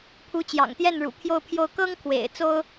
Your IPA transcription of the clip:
pʰ u˧˥ t͡ɕ j ɑ̰˨˩ ŋ t̪ j ɛ˥˩ n ɻ ṵ˨˩ pʰ j o˥˧ ʊ̯ pʰ j o˥˩ ʊ̯ k ɤ˥ ŋ kʰ w ḛ˨˩ ɪ̯ t͡s o˥ ʊ̯

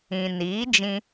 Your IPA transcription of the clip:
ĩ˨ n iː˨˦ d͡ʒ ĩ˧

